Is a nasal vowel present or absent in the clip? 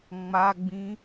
present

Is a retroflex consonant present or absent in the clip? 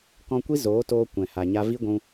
absent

